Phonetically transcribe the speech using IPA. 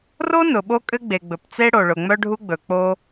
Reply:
r o˥ n ʊ˩ ɓ o˥ kʼ ɘ˥ ɡ͡b e˩ ɡ͡b ɵ˩ p t͡s e˥ ɽ o˩ ɭ ʊ˩ ŋ͡m œ˥ ɖʱ u˥ ɡ͡b ɵ˩ k͡p o˥

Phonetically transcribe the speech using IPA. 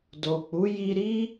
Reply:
d o˨ k͡p u˨˦ j i˧ ɾ i˦

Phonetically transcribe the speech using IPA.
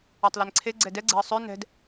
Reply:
a tˤ l ɛ n ǀʰ e ɡ͡ǀ ɛ d ɛ ɡ͡ǀ ɛ̤ ə̯ sˤ ø n ɛ̤ d

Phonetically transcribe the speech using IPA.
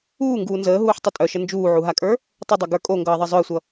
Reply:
uː ŋ ɡ uː n z əː ɦ uː ħ tˤ ə tʼ œ ʃ ə n d͡ʒ uː ʕ u ɦ a kʼ ə˞ | tˤ ə dˤ ʌ ɡ ə˞ kʼ o ŋ ɡ ʌː ðˤ ʌ zˤ œ e̯ sʷ ʌ

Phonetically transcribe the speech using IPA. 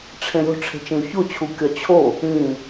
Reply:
ʈ͡ʂʰ ẽ ɾʲ o̤ ʈ͡ʂʰ e̤ t͡ʃ ĩ u̯ ç o t͡ɕʰ u kʲ ɒ t͡ɕʰ o | ĩ

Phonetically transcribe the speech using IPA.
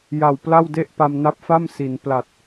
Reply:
j a˨˩ w p l a˥˩ w d e˥˩ ʔ p a˧ m n a˦˥ p̚ f a˥˩ m s i˩˦ n p l a˨˩ t̚

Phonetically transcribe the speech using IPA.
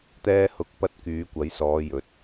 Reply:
t̪ ɛː˧ h ʊ˨˥ k̚ p ɐ˧ t̚ k yː˨˧ kʷ ɐ˨˥ j s ɔː˨˧ j ɵ˨˥ t̚

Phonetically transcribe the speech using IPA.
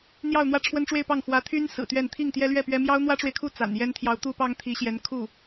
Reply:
n̪ j ɑ˥˧ ʊ̯ n̪ w ä˥˩ ʈ͡ʂʰ w ə˥ n ʈ͡ʂ w e˥˧ ɪ̯ p ɑ˥˩ ŋ x w ä˧˥ t̪ʰ y˥ n s ɹ̩˨˩ t̪ ɥ ɛ˥˧ n t̪ʰ i˥˩ ŋ t̪ j ɛ˥ l ɥ ɛ˥˩ p ɥ ɛ˥ m j ɑ˥ ʊ̯ n̪ w ä˥ ʈ͡ʂ w e˨ ɪ̯ kʰ u˥˩ t͡s a̰˨˩ n j ɛ˥ n t̪ʰ j ɑ˧˥ ʊ̯ t̪ u˥ p ɑ˥ ŋ t̪ʰ i˧˥ ɕ j ɛ˧˥ n kʰ u˥˩

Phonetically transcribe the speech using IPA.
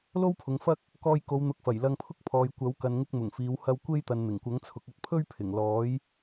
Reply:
l o˥ w pʰ ʊ˨ ŋ f ɐ˥ k̚ | k ɔː˧ j k o˨˧ w n̪ ʊ˨ k̚ f ɐ˨˩ j l ɐ˧ ŋ pʰ ʊ˥ k̚ pʰ ɔː˨ j kʷ ɐ˨˥ w k ɐ˨ n ŋ ɪ˧ k̚ m ʊ˨˩ ŋ f iː˨˧ w h ɐ˧ w kʷ e˥ j t̪ ɐ˨ n n̪ ɪ˨˩ ŋ kʷ ɐ˨˥ ŋ t͡sʰ ʊ˨˥ k̚ ɐ˧ t̚ pʰ ɵ˥ ɥ pʰ ɪ˨˩ ŋ l ɔː˨˥ j

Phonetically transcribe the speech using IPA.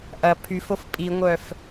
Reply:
ʔ ɐ pʰ y f o f pʼ i ŋʷ œ f

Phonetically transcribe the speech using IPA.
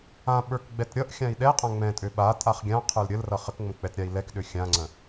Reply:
ã ɓ ə˞ k ɡ͡b ɛ t ɾʲ ʌ ʔ xʲ ã i̯ ɗ ɛ qʼ ã ŋ͡m ɛ̃ tʼ ø ɓ a tʼ a χ ɡʲ ã qʰ ə˞ l ɾʲ ə l r ʌ χ ə k ŋ͡m ə̃ k͡p ɛ t ɾʲ a i̯ l ɛ k ɗ ø xʲ ã ŋ͡ǀ ə̃

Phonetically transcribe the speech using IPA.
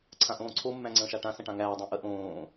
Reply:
ǀʰ ã ʔ õː ǀʰ o mː æ̃ ŋ͡ǀ ə̃ː ʃ a ʈ ã s ə̃ ʈ ã ŋ æː dˤ õ ʔ ə ʔ õː

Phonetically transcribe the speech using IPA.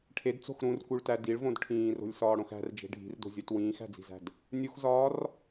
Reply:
ʈʰ e d t͡s o̤ x ɾ ũ r k u ɭ t æ d i ɭ v õ d ʈʰ ĩː r o̤ lʲ s ɒː ɽ õ x æ̤ r d͡ʒ e̤ ɖʱ i̤ r d o̤ zʲ o t w ĩː x æ̤ d͡z i̤ z æ̤ d | nʲ u x z ɒː r

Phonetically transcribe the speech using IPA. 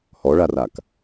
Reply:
h ɔ ɭ a r a k

